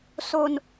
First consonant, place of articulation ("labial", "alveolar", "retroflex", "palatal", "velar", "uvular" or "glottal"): alveolar